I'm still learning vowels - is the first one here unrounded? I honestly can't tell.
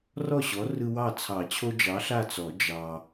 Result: no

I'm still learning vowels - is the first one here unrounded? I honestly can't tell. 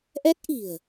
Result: yes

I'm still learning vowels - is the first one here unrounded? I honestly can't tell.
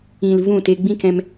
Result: yes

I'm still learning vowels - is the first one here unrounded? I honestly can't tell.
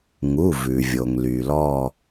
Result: no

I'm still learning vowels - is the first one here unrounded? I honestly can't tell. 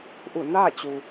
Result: no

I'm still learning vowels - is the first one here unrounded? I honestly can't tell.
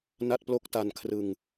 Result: yes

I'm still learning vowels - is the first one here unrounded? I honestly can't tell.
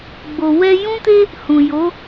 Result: no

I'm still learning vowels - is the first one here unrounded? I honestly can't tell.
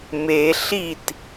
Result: yes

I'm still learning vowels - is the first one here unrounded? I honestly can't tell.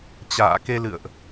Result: yes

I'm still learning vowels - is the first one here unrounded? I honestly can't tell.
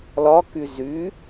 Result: no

